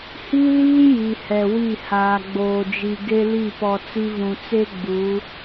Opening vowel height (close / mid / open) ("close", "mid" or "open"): close